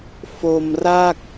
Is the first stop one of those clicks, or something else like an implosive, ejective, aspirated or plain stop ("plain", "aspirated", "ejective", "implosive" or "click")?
plain